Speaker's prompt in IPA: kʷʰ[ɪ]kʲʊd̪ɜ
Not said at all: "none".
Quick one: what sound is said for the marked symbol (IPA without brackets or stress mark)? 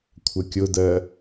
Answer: ə